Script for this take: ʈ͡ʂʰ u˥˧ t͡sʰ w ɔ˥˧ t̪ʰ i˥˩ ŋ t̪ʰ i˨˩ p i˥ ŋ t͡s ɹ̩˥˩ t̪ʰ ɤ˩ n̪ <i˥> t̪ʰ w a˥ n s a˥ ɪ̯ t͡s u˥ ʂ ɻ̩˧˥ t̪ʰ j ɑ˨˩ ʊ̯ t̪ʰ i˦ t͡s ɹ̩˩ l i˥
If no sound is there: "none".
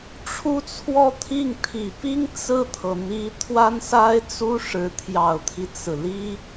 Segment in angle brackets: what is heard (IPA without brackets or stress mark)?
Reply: i˧˥